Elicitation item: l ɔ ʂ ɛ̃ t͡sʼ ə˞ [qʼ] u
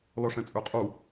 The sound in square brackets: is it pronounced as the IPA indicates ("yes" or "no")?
yes